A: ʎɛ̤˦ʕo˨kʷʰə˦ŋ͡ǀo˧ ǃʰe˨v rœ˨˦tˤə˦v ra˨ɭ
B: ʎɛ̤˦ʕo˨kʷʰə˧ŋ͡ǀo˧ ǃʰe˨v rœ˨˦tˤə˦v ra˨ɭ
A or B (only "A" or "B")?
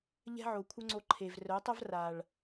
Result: A